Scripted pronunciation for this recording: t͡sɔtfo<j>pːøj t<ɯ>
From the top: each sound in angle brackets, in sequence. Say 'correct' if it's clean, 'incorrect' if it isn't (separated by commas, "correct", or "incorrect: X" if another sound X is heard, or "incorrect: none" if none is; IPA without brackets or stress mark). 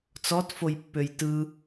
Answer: correct, correct